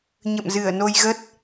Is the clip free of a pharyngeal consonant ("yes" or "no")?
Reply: yes